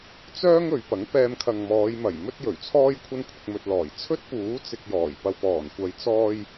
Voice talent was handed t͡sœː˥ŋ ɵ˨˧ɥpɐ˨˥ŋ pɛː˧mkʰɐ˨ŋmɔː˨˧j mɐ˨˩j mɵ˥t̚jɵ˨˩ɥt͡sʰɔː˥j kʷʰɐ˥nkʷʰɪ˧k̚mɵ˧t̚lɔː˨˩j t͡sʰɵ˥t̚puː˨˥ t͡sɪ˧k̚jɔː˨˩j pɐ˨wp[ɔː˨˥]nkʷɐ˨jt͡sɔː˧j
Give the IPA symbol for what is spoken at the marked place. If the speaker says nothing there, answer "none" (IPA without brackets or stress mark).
ɔː˨˩